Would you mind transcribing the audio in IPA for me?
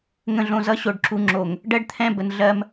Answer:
ŋ ə̃˨ ɮ õ˨ z ʌ˦ ɕ o˨ ɖ ǁ u˨ ŋ͡ǁ o˨ ŋ | ɖ ɜ˦ ɖ t̪ʰ ɛ̃˦˨ b ə˨ n ɮ ɜ˦ m

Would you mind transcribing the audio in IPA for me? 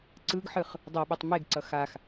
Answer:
ǀ ɯ ɡ ħ ɯ χ | dˤ o ɓ e tˤ m e ɡ ǀ ʌ x a x

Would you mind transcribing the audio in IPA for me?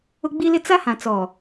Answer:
ʊ˦ ɡ͡b i˦ l ɪ˦ t͡s a˦ h ã˨ t͡s ɔ˨

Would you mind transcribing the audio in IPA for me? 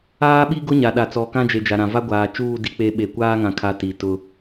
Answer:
aː˦ ɓ i˦ ɡ ʊ˦ ɲ a˨ ɗ a˨ t͡s ɔ˨ k ã˦ d͡ʒ e˨ d͡ʒ a˨ ɾ ã˨ v a˦ ɡʷ aː˨ t͡ʃ uː˦˨ d i˦ k͡p e˦ ɓ e˨ kʷ aː˦ ŋ ã˨ kʰ a˨ t i˨ t ʊ˦

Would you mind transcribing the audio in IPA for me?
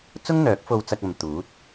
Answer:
t͡s ʊ˥ ŋ n̪ œː˨˥ k̚ f o˧ w t͡s ɐ˧ k̚ ɐ˨ m t̪ uː˨˥ t̚

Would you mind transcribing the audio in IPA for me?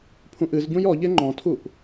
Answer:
pʰ ũ ʔ ɨ z ɟ ũ j ɔ ʎ e ŋ͡ǃ ɔ̃ tʰ u ʔ

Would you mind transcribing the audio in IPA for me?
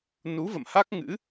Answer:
n u˨˦ v ə̰˧˨ m h a˦˥ k̚ ŋ ɨ̰˧˥

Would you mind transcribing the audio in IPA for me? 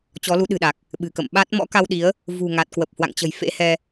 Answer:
t͡ɕ ɔ˨˦ l u˨˦ ɗ ɨ̤˨˩ ɗ a˨˩ k̚ | ɓ ɨ̤˨˩ k ə̰˧˨ m ɓ a˦˥ t̚ m ɔ̰˧˥ k a˧ w ɗ i˨˦ ə̯ | v ṳ˨˩ ŋ a˨˩ t̚ k w ə˨˩ p̚ h w a̰˧˨ ŋ t͡ɕ ə̤˨˩ j f ḛ˧˥ h ɛ˧

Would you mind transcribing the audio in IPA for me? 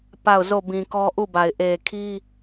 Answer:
p a˦˨ ʊ̯ z o˦˨ b ĩ˨ k ɔ˦ ʔ u˦˨ b a˨ ɪ̯ ʔ e˨ kʰ i˦

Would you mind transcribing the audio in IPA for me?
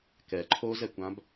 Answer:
k ɛ ǃʰ o z ɛ kʷ ã b

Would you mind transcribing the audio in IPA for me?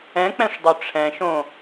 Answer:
ɛ̃ k͡p ɛ̃ ʂ dˤ ɵ ʈ͡ʂʰ ɛ̃ ʃ õ

